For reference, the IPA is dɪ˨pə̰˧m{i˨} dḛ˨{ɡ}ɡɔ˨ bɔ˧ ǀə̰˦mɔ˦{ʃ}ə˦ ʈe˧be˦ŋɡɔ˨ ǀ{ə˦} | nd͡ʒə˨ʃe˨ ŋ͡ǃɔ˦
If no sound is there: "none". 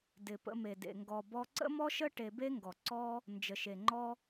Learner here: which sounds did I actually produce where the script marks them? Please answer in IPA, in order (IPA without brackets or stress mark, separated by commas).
e˨, ŋ, ʃ, ɔ˦